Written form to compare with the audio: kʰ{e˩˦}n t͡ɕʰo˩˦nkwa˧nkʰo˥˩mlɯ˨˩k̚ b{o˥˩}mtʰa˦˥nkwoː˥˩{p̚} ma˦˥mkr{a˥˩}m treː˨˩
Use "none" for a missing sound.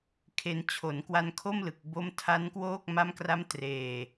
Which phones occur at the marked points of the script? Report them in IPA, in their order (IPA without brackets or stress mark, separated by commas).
e˧, o˦˥, k̚, a˦˥